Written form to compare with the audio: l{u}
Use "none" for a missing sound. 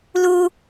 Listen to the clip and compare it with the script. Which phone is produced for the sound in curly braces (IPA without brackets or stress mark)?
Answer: u